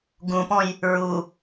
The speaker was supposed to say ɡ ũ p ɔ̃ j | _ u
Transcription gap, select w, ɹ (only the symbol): ɹ